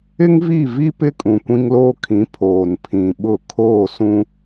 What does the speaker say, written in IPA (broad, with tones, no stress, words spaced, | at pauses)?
ɪ˦ŋvi˦˨vi˦ pɪ˦ kʼũ˨kʷĩ˦ŋloː˦kʰĩ˨˦ pʰoː˨npʰĩ˨ɓʊ˦˨ kʰoː˦˨sũ˦